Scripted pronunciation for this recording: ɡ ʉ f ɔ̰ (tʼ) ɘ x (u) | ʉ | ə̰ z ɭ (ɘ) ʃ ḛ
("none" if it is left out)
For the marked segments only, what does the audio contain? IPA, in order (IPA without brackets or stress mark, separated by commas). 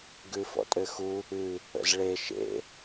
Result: tʼ, u, e